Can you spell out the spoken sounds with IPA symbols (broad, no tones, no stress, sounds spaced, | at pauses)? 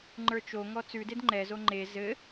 ŋ͡ǃ ə˞ t͡ʃ o ŋ ɔ t͡s ʉ d e d ŋ͡ǃ ɛ z o ŋ͡ǃ e z ɘ